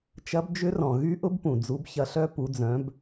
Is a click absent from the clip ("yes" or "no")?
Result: yes